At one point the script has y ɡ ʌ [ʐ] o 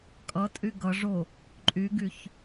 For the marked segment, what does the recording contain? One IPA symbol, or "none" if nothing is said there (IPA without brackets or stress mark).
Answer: ʐ